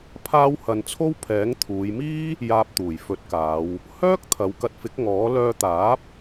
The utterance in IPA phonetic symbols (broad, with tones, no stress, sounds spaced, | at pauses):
pʰ aː˥ w h ɐ˧ n t͡sʰ o˥ w pʰ ɛː˨˥ ŋ t̪ʰ uː˨˧ j m iː˥ | j aː˧ p̚ t̪ uː˨˩ j f ɵ˨˥ t̚ k aː˨˧ w | h œː˥ k̚ t̪ʰ ɐ˨˧ w k ɐ˧ t̚ f ɪ˨˥ k̚ ŋ ɔː˨˥ l œː˧ t̪ aː˨˥ p̚